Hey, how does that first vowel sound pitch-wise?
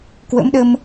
rising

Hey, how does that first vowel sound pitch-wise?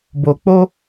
low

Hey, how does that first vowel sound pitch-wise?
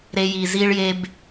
high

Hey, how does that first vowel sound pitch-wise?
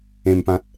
low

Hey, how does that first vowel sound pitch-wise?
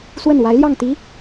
falling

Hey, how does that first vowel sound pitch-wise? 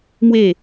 falling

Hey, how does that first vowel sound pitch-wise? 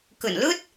low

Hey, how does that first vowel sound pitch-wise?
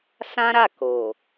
high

